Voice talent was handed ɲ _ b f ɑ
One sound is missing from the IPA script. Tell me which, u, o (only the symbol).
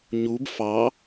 u